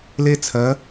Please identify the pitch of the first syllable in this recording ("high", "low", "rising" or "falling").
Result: high